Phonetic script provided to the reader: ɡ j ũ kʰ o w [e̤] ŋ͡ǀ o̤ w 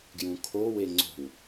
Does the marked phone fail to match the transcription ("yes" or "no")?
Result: yes